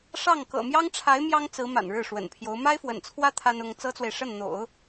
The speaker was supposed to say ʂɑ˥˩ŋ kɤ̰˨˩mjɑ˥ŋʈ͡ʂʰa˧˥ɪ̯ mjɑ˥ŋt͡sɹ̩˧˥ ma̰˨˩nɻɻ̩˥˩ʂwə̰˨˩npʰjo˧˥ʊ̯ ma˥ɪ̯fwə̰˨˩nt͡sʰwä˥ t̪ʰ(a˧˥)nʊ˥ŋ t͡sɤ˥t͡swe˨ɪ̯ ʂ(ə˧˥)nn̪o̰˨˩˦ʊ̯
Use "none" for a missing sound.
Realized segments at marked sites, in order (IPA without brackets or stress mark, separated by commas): a˥, ə˥˩